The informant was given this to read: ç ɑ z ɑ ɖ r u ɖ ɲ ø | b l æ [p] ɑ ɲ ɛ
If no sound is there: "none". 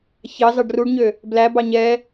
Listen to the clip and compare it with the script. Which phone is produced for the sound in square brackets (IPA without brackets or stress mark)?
b